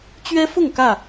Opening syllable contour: high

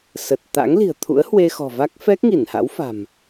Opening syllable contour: low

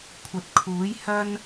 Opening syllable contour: rising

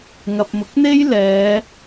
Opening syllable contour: low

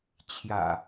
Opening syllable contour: low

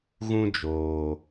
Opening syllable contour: high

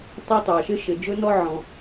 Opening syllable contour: high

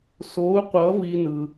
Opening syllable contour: rising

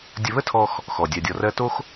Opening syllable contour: low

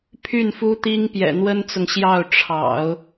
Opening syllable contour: falling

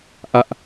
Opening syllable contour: high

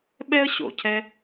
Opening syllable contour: high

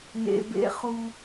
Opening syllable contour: low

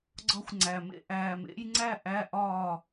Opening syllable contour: rising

